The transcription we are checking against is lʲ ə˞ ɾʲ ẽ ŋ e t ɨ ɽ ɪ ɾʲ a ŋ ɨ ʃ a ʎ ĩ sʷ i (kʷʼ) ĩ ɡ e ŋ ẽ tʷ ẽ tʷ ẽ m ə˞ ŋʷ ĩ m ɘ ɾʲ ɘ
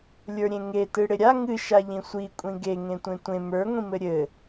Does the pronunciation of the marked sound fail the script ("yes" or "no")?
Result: no